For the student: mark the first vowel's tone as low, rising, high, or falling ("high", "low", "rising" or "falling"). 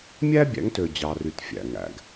high